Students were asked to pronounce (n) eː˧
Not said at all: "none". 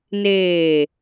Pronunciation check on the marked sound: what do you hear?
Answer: n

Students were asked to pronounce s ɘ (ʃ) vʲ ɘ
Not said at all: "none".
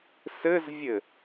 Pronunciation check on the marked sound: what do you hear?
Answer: z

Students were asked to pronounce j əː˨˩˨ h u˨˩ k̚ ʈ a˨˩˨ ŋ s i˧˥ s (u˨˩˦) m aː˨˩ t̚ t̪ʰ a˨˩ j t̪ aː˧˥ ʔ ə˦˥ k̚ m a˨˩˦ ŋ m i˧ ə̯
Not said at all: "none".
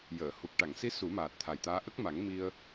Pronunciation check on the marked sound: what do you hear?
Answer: u˨˩˦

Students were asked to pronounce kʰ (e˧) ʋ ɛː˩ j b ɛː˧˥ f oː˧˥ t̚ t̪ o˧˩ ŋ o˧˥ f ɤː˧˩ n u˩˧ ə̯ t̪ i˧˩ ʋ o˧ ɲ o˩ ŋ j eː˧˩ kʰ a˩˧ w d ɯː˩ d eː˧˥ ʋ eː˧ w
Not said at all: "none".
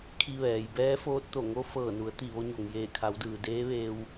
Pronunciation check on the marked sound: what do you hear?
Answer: i˧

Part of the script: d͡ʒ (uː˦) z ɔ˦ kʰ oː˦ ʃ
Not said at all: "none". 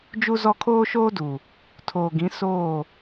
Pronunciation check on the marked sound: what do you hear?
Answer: u˦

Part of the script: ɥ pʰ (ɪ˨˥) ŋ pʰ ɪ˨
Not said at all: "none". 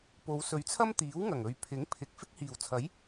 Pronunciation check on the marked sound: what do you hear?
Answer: ɪ˨˥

